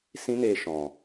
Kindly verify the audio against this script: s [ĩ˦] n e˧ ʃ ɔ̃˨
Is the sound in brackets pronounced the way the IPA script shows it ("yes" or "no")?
yes